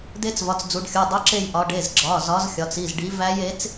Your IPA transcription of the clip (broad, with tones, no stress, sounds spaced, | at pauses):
d e˦˥ t͡s v ɒ˩˧˩ t͡s d͡z u˩˧ ɖ xʲ u˩˧˩ dˤ u˨˥ ǁ e˦˨ j ʔ ɒ˩˧ ɖ e˩˧˩ z ɡ͡ǁ ɒ˩˧˩ z ɒ˨˥ z xʲ ɒ˩˧ t͡s i˩˧˩ z ɖ i˨˥ v æ˦˥ j e˨˥ t͡s